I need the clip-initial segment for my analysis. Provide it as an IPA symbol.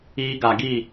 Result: iː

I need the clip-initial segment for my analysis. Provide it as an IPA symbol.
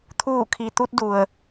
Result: t̪ʰ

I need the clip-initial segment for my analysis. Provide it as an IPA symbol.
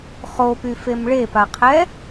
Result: χ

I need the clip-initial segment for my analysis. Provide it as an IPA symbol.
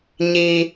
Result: ɲ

